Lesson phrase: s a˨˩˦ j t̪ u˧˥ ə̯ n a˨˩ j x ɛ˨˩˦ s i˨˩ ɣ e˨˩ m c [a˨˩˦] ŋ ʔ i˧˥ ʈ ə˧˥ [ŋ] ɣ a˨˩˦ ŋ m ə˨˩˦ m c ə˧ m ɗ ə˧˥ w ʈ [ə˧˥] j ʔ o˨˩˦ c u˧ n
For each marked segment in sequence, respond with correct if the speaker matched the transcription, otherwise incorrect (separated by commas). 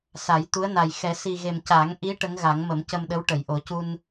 correct, correct, incorrect